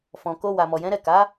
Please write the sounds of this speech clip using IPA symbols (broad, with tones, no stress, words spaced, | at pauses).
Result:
fɔ̃˨ko˧ wa˨mɔ˨jɛ̃˨˦ɾɛ˦˨ ka˨˦